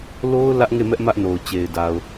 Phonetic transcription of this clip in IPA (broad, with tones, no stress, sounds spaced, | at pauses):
l o˦ ʊ̯ l ä˦ ʔ ŋ e˦˨ m ɛ˦ ʔ m ä˦ ʔ n o˨ ʊ̯ t͡ɕ e˨ ɪ̯ d a˨ ʊ̯